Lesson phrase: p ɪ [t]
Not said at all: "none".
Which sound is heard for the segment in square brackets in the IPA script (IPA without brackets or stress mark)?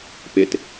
t